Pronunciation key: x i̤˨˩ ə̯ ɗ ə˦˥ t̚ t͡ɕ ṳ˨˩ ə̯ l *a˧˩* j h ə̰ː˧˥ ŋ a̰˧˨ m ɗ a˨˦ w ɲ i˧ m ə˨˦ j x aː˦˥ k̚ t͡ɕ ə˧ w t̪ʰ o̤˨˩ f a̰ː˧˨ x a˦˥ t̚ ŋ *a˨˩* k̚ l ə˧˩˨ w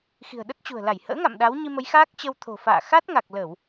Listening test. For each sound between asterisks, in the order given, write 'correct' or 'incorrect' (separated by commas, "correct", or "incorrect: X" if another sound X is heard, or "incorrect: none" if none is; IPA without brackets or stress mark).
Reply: correct, correct